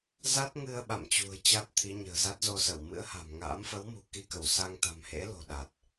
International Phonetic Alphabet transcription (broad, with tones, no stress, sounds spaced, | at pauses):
z a˦˥ t̚ ŋ ɨ˧ ə̯ ɓ a̰˧˨ m t͡ɕ ṳ˨˩ ə̯ t͡ɕ a˦˥ t̚ t̪ʰ i˨˦ ɲ ə̤ː˨˩ z a˦˥ t̚ z o˧ s ə˧˩ w m ɨ̰˧˥ ə̯ h a̤˨˩ m ŋ a̰ː˧˥ m f ə˨˦ w m ṳ˨˩ k i˧ k ə˧˩ w s a˧ ŋ t̪ a̤˨˩ m h ḛ˧˥ l o̤˨˩ ɗ a˨˩ t̚